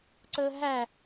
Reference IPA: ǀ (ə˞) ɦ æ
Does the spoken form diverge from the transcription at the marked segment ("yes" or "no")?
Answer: yes